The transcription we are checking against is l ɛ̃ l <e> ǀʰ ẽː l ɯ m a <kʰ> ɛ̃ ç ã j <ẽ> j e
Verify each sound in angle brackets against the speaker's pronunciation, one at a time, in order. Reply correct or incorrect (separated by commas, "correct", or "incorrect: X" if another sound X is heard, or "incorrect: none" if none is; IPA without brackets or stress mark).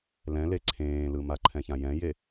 correct, incorrect: ǃʰ, incorrect: ɛ̃